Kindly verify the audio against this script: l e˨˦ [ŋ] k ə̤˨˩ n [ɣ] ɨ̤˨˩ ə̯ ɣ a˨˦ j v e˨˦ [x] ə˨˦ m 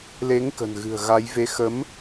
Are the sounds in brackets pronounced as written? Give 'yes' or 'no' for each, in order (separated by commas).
yes, yes, yes